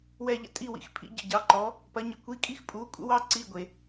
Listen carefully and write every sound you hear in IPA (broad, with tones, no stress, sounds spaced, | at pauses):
w ɛ˦˨ ʎ ə̰˦˨ tʼ i˧˥˧ w ḭ˨˥ x pʰ ḭ˨˥ ɟ ə̰˦˨ ɟ ɑ˨˥ ǃ ɔ˨˥ | p ɐ˨˥ ɲ ə˨˥ kʷ i˧˥˧ kʼ i˥ x pʼ u˨˥ kʷʼ ə̰˥ w ɑ˥ ǀ i˧˥˧ ɡʷ e˩